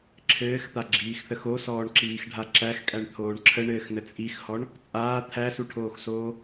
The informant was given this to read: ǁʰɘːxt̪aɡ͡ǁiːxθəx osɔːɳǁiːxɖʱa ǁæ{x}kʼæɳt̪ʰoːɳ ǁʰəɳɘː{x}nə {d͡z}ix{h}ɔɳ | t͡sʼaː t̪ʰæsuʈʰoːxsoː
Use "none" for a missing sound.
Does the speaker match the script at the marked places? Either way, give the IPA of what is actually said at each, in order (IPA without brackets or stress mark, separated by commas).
x, x, t͡sʼ, h